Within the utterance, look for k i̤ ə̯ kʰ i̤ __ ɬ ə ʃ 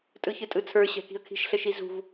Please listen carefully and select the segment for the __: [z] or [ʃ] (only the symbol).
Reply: ʃ